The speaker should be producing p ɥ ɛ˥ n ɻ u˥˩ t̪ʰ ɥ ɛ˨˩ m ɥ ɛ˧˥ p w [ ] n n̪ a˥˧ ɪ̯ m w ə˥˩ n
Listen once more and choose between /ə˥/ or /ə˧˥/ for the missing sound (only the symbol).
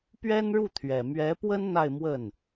ə˥